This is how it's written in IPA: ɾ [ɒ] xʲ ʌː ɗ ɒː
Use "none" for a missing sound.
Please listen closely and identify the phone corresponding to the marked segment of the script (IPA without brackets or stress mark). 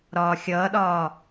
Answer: ɒː